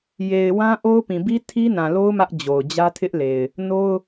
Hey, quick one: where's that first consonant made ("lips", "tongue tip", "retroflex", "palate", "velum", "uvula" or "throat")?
palate